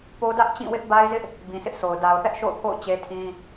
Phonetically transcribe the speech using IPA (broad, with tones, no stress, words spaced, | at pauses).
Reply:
po˦ dä˦ʔt͡ɕĩ˦˨wɪ˦ʔ ba˦ɪ̯zɪ˦ʔ | bĩ˨sʰɪ˦ʔsʰo˨ʊ̯ da˨ʊ̯θɛ˦ʔʃo̰˦˨ʊ̯pʰo̰˦˨ʊ̯ t͡ɕe˦tʰĩ˦